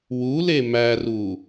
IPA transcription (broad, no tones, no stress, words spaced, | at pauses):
wule mæru